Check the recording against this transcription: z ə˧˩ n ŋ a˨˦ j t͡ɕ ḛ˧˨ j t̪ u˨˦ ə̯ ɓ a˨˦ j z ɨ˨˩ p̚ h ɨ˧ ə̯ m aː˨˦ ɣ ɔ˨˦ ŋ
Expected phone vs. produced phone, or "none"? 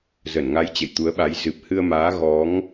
none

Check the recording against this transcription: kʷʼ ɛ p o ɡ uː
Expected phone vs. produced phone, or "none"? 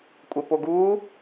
none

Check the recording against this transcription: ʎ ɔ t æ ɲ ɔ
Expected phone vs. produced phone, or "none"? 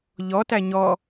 none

